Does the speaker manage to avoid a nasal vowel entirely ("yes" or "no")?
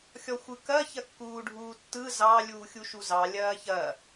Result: yes